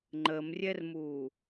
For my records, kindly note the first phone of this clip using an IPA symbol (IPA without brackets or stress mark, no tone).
ŋ͡ǃ